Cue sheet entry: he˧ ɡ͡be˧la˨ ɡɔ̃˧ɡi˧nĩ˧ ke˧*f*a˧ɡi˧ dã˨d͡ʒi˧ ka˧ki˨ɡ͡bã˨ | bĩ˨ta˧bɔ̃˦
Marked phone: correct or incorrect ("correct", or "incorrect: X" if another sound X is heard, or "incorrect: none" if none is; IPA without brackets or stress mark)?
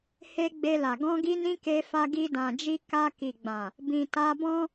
correct